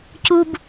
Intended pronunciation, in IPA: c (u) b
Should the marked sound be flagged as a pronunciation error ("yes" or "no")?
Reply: no